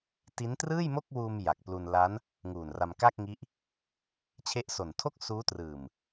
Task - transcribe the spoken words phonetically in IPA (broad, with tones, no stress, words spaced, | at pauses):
ti˦˥ntrɯː˥˩jmo˥˩k̚wuː˧m ja˨˩k̚plu˧n la˦˥n | ŋuː˨˩nra˧m ka˥˩k̚ŋi˦˥ʔ | t͡ɕʰe˦˥ʔso˨˩n tʰo˥˩k̚suː˦˥trɯː˨˩m